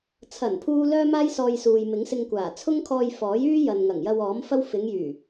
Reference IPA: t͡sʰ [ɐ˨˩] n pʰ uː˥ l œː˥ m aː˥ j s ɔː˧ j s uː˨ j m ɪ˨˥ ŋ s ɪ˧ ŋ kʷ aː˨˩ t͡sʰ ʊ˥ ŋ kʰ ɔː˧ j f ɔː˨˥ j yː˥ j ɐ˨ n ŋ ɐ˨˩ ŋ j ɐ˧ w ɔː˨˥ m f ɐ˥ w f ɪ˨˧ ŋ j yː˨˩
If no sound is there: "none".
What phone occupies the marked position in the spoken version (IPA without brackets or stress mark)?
ɐ˨˩